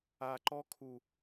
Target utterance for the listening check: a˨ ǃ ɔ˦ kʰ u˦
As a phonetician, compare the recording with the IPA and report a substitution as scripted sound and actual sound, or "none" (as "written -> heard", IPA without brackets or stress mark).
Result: u˦ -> u˨